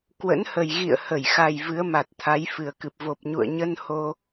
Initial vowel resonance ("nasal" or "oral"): oral